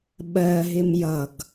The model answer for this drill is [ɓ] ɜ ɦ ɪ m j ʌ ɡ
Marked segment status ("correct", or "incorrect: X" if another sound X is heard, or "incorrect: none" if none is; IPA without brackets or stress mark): correct